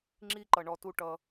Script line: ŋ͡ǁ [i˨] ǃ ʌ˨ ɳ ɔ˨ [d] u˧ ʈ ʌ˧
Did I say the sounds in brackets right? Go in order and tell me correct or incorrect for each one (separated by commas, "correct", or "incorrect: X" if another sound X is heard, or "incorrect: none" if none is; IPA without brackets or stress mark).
incorrect: i˦, incorrect: t